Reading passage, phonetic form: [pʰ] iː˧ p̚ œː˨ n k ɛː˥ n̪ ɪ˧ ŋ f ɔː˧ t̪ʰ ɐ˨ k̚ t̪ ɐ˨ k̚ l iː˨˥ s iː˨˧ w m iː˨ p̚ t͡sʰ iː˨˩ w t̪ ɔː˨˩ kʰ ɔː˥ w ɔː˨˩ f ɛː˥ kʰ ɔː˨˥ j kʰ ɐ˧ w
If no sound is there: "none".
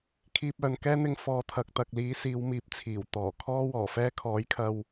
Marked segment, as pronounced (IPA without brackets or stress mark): kʰ